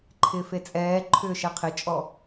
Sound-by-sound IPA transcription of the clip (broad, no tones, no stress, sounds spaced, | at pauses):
ǃʰ ɪː f e t͡sʼ ɛː ǃʰ ʏː ʃ ɛ qʰ ɪ t͡ʃʼ ɔ